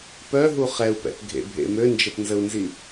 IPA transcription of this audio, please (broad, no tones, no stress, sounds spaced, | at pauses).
p œ ɦ u χ ɛ u̯ p ɛ̰ p ɡʱ ḛ bʱ ḛ m ø n d͡ʒ ə p n z ə u̯ n z i